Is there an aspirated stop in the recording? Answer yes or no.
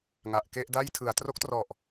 yes